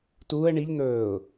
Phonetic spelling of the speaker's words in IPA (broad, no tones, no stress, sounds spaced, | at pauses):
t uː ə̯ ɳ i ʎ n̪ ɵː ʊ̯